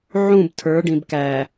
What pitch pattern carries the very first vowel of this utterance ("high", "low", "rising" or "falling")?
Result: falling